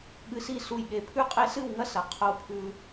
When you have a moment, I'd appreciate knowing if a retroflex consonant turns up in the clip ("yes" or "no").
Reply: no